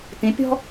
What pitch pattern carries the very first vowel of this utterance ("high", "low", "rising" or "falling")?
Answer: rising